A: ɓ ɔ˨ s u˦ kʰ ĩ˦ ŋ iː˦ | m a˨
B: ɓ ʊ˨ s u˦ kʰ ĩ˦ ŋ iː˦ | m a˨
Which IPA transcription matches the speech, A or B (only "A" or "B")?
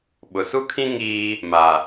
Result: B